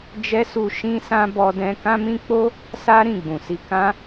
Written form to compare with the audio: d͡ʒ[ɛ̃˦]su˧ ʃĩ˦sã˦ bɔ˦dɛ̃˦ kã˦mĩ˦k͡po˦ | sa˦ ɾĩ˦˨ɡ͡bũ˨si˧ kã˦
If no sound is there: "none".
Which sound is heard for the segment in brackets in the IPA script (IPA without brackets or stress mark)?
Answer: ɛ˦